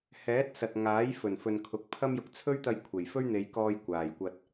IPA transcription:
hɛː˨˥t̚ sɐ˨t̚ŋaː˨˥jfɵ˨˩nfɵ˨n kʰʊ˨k̚pʰɐ˥m jʊ˨k̚t͡sʰɵ˥ɥt̪ɐ˧j kʷʰe˨˩jfɵ˥ɥn̪e˨˧jkɔː˧j kʷaː˨˩jkʷɐ˧t̚

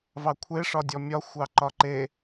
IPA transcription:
vɑkʷʰe ʂɒdʲɔmʲɒ xʷɑǃɒǃe

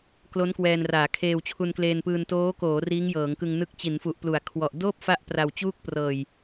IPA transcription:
klo˦˥n kwɛː˧nraː˩˦ kʰeː˧wt͡ɕʰu˧nkleː˧npɯː˧n toː˦˥koː˩˦ riː˦˥ŋjɤː˩˦ŋkɯ˧ŋnɯ˦˥k̚ t͡ɕi˩˦nfu˨˩ʔplu˩˦a̯kʰwɔ˨˩ʔ doː˥˩p̚ fa˥˩ʔpra˧wt͡ɕuː˥˩k̚ prɤː˨˩j

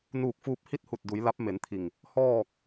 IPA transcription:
nuː˧˩k̚fuː˧p̚hi˥˨t̚hu˧˩t̚ du˩˧jla˧˥p̚me˩˧nt̪ʰi˧˩ŋ | hɔː˥˨k̚

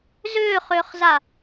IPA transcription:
zʏːχʏːχza

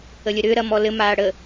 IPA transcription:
əlʲəɾʏː ɾɐmɔlɘ maːɽə

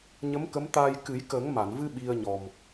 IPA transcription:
ɲə˧˥mkə˧˥mt̪aː˧j kɨ˨˩˦jkə˨˩˦ŋma˨˩˨nvɨ˧ ɓi˧ə̯ɲɔ˨˩m

